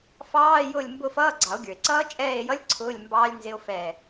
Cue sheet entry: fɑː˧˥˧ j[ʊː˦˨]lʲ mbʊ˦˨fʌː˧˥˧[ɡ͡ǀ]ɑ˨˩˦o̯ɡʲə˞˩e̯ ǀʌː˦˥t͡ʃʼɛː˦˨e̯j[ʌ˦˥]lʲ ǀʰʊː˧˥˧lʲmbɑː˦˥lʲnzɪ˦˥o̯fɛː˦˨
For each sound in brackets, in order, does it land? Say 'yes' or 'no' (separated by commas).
yes, yes, yes